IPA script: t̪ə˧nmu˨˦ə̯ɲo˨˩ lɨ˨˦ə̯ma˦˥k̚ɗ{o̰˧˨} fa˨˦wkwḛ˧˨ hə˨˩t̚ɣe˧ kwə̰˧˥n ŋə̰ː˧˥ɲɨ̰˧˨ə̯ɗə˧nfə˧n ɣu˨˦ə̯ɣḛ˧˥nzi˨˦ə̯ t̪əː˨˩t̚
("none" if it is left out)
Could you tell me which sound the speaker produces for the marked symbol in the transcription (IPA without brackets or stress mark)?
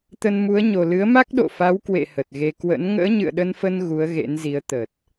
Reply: o̰˧˨